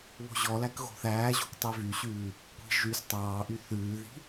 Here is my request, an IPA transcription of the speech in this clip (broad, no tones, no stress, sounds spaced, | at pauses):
β o̤ ʑ ɔ l æ k ɣ o̤ θ æː ʑ o̤ kʷ tˤ i v y ɕ ʉː | kʷ i̤ ʒ y s tˤ ɑː ʔ y θ ʉː ð i̤